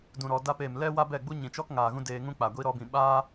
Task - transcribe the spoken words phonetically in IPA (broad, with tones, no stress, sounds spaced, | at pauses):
d ũ˨ ɾ ɔ˨ d a˧ p eː˨ m l ɛ˦ w a˦ b ɛ˦˨ ɡ͡b u˦ ɲ ĩ˨ t͡ʃ ɔ˦ k ŋ aː˨ ɣ ũ˦ d eː˧ ŋ ũ˦ k͡p a˨ ɡʷ i˧ ɾ ɔ˧ b ĩ˨ ɓ aː˦